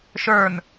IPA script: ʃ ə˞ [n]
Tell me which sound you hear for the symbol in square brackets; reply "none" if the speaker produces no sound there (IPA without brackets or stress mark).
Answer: n